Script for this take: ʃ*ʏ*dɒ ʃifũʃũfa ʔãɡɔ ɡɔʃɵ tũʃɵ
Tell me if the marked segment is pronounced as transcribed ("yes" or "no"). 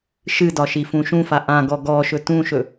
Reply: no